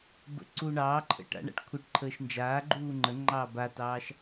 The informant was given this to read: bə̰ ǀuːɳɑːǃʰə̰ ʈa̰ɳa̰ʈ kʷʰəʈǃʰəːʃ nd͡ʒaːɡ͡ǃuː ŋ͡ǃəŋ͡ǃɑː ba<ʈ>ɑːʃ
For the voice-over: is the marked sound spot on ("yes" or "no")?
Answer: no